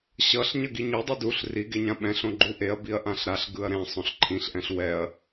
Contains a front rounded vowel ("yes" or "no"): no